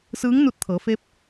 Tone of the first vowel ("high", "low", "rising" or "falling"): rising